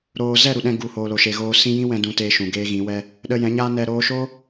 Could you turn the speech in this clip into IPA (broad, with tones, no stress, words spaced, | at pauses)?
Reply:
ɾoː˧ zɛ˦˨ɾu˨ɗɛ̃˧ ɡu˨ hoː˨lo˨ʃe˨ɣoː˧ sĩ˦ jĩ˦wɛ̃˧ dũ˧teː˧ ʃũ˨ɡeː˦ɣĩ˨˦wɛ˦ | ɗə˧jɛ̃˨˦ɲaː˦nɛ˧ ɾoː˧ʃoː˦